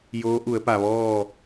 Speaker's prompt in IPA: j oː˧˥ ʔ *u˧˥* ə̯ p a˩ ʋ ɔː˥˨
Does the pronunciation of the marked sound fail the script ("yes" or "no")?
yes